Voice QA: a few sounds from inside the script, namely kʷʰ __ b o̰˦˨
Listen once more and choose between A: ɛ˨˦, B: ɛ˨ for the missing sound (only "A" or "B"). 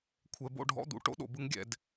B